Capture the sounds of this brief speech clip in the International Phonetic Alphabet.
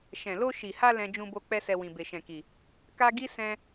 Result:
ʃ ɛ̃˨ l o˧ ʃ i˨ h a˧ l ɛ̃˦ d͡ʒ ũ˧ b o˧ k͡p ɛ˦ s ɛ˧ w ĩ˨ b e˨ ʃ ɛ̃˨ k i˨ | k a˦ ɡ i˦ s ɛ̃˦

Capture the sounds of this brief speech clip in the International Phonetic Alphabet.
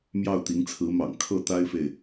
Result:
m j ɑ˥˩ ʊ̯ t̪ i˧˥ ŋ t͡sʰ ɹ̩˧˥ m ɑ̰˨˩ ŋ kʰ ɤ˥˩ t̪ a˥ ɪ̯ f e˨ ɪ̯

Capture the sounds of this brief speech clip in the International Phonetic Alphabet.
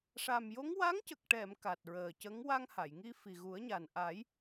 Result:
ʂ a˨˩ m j o˧˥ ŋ w a˧˥ ŋ c ə˨˩ k̚ ʈ ɛ˨˩˨ m k a˨˩ t̚ ɹ əː˨˩ c ə˧˥ ŋ w a˧ ŋ h a˨˩˨ j ŋ i˧ f i˨˩ ɣ u˨˩˦ ə̯ ɲ a˨˩ n ʔ a˨˩˦ j

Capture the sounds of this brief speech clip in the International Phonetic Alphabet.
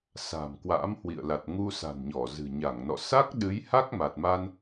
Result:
s a̤˨˩ m k w a̰˧˥ m h w ḭ˧˨ ə̯ l a˨˩ t̚ ŋ u˧ s a̤˨˩ n ɲ ɔ˧˩ z ɨ̤˨˩ ɲ a˧˩ ŋ n ɔ̰˧˨ s a˦˥ k̚ ɗ ɨ˨˦ j h a˦˥ k̚ m a˨˩ t̚ m a˧ n

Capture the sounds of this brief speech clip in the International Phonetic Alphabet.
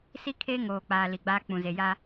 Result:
s i˦ kʰ eː˦ ŋ oː˨ k͡p aː˨ l i˨ ɡ͡b aː˦ k͡p ũ˨ z e˨ j a˦

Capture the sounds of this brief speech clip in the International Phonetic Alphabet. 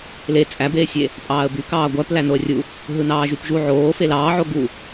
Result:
l e t͡sʼ æ b eː sʲ e | pʼ ɑː ə̯ b y k ɑː ɡʷ æ p l æ n o ə̯ rʲ u | ɦ ɯ n ɑː ʒ y p ʒ u ʕ oː f e l ɑː ʕ o ɡ u

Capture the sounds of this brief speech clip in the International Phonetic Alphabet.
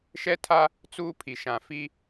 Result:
ʃ ɛ˦ tʰ a˦ | t͡s uː˦ pʰ i˨ ʃ ã˨ f i˦

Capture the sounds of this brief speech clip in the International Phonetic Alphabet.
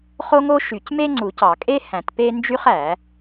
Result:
χ o˥ ŋ o˥ ʃ y˨˩˦ c m e˥ ŋ͡ǀ u˨˩˦ c ɑ˨˩˦ kʼ e˥ h æ̃˨˩˦ t p e˥ n d͡ʒ y˥ χ æ˨˩˦

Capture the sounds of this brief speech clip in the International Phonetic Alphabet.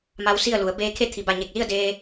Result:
m a˧ w s i˥˨ ə̯ l u˩˧ ə̯ b eː˧ kʰ e˥˨ t̪ʰ i˩ b a˧˩ ɲ e˧˩ k̚ l i˥˨ ə̯ d eː˧

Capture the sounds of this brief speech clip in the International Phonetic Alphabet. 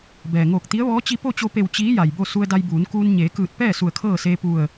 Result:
b ɛː˩ ŋ oː˧˩ k̚ t̪ i˧˥ ə̯ ʋ ɔː˧˥ t͡ɕ i˧ p o˥˨ t͡ɕ o˧ p e˧˩ w t͡ɕ iː˧˥ j a˩ j b o˥˨ s u˧ ə̯ d a˧ j b uː˩˧ n k uː˧ n ɲ eː˩˧ k ɯː˧˩ t̚ p ɛː˥˨ s u˧˩ ə̯ kʰ ɤː˥˨ s eː˧ p u˧˩ ə̯

